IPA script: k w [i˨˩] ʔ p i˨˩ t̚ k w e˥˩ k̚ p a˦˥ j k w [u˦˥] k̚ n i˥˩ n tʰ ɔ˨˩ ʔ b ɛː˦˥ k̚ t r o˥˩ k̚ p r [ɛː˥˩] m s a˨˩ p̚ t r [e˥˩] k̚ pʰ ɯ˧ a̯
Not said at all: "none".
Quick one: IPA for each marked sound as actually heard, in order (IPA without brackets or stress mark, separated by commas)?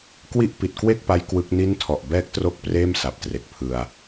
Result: i˥˩, ɯ˦˥, eː˥˩, e˨˩